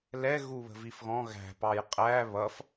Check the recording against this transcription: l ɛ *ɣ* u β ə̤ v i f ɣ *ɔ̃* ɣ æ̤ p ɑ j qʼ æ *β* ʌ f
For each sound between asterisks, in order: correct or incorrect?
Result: correct, correct, correct

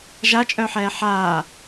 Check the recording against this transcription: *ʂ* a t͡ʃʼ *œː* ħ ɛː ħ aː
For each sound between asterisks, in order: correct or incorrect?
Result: incorrect, incorrect

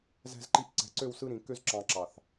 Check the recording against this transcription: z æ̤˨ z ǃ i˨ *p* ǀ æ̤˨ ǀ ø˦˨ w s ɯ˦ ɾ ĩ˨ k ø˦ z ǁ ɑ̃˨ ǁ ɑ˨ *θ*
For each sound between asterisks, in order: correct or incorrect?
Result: correct, correct

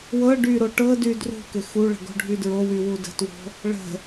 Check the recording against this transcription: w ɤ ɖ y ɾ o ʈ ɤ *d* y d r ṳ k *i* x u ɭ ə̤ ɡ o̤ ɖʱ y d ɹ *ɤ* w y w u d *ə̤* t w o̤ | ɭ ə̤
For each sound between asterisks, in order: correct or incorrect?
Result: correct, incorrect, incorrect, correct

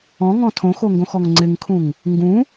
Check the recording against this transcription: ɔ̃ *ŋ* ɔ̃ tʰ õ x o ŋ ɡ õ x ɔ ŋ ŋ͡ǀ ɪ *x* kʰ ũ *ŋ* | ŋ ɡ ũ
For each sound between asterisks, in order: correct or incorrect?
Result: correct, incorrect, correct

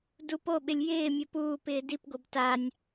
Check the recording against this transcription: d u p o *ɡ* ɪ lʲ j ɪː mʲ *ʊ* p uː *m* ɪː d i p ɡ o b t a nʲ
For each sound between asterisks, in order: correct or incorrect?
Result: incorrect, correct, incorrect

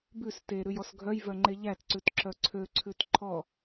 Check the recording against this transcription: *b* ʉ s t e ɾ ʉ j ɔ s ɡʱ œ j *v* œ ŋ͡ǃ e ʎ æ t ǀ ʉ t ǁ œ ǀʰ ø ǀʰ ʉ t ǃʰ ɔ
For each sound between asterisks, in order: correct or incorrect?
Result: correct, correct

